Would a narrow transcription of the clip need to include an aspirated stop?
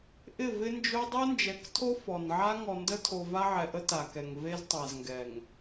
yes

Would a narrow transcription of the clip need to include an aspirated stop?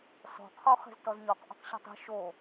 yes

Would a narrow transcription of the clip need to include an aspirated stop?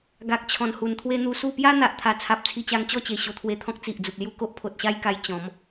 yes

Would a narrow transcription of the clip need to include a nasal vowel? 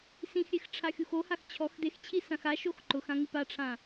yes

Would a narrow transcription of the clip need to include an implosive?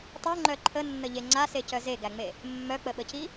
yes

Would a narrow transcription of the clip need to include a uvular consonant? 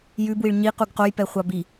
yes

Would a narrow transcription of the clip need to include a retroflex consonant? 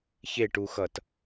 yes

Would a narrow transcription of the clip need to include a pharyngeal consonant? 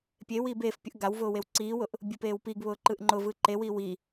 no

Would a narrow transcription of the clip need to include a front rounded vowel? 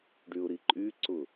yes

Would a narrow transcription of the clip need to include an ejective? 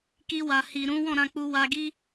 no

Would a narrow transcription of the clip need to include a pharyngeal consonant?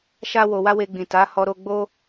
no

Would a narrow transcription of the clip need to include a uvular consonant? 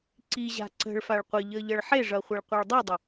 yes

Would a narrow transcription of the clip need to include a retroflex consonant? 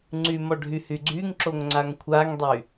yes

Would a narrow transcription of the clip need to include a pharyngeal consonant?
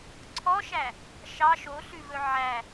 yes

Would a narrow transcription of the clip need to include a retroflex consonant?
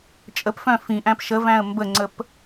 no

